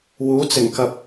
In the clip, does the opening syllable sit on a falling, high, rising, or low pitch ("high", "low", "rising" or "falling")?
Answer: rising